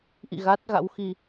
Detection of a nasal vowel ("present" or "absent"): absent